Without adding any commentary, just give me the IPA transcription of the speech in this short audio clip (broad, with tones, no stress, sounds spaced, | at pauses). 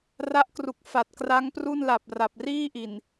r a˦˥ ʔ k r u˨˩ k̚ f a˨˩ t̚ k r a˦˥ ŋ p r u˥˩ n l a˨˩ p̚ r a˨˩ p̚ r iː˥˩ ʔ i˨˩ n